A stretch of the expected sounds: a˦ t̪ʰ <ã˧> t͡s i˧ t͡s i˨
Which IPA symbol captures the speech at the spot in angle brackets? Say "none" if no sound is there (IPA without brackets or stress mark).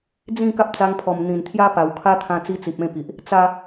ã˧